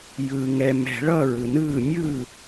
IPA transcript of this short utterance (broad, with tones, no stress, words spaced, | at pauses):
jɯː˨ŋɛ˨ mɛ̤˨˩˦ɭʌ˥˩ ɹɯ˨nɯː˥˩ mʲɯ˥˩